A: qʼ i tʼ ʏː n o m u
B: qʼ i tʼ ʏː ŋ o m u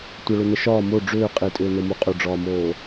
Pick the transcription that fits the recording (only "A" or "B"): A